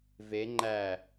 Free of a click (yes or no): no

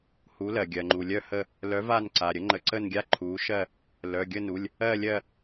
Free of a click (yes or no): no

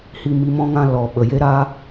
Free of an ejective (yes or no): yes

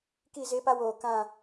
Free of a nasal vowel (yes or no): no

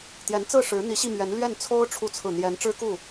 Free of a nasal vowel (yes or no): yes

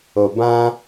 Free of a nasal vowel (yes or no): no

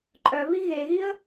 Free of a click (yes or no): no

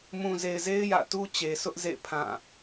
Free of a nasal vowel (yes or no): no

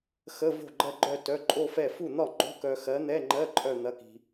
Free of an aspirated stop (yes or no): yes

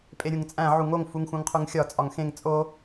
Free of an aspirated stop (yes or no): no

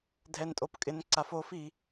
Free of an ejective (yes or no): no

